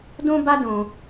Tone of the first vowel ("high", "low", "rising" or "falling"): high